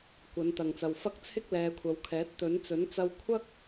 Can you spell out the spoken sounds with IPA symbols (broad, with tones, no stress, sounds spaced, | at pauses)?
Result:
kʷ ɐ˨˧ n t̪ ɐ˨ ŋ t͡s ɐ˨ w f ɐ˥ k̚ t͡sʰ ɪ˥ k̚ l ɛː˨˧ kʷʰ ɐ˨˧ w kʰ ɛː˨˥ t̚ t̪ ɵ˨˥ n t͡s ɵ˨˥ n t͡s ɐ˧ w kʷʰ ɐ˥ k̚